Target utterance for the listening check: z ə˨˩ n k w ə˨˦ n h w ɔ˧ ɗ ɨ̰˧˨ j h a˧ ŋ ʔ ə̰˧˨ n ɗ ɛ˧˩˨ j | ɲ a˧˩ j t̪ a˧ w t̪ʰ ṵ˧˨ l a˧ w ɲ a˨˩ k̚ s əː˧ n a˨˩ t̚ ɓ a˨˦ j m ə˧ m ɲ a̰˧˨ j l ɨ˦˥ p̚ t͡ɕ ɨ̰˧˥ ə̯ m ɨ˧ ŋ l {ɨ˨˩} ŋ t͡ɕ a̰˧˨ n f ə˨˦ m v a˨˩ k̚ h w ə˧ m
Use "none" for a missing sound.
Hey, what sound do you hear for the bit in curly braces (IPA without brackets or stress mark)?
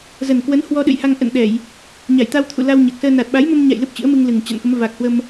ɨ˨˩